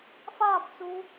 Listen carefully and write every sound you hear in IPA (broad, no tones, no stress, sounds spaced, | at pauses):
f a b t͡s u